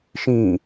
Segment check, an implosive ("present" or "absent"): absent